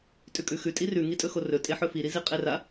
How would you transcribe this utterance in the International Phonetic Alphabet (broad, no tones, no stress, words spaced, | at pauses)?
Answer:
tʼʉkʼʉxʉ tʼirʉ ŋitʼɵxorɵ tʼeħɵfiɾi ziqʼera